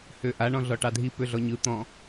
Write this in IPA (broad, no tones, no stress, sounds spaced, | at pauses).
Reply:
h ø ʔ a ɳ ɔ̃ ɮ ɔ ʈ ɑ dʱ i p ø ɮ ɔ ɲ ɯ t̪ ɔ̃